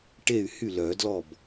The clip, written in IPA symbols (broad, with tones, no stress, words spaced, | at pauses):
ʈe˥˩y̯hy˥˩ lœ˨˩˦dlɔ˥˩b